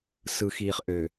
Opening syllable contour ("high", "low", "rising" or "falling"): low